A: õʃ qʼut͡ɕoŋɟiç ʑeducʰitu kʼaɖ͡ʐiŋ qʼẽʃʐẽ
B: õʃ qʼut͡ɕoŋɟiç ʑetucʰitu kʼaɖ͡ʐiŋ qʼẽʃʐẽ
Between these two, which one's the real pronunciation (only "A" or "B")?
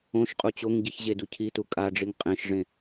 A